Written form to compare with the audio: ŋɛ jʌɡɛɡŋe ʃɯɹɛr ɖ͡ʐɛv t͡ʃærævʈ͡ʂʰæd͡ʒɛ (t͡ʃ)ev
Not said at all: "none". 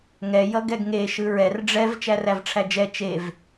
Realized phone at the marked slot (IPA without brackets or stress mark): t͡ʃ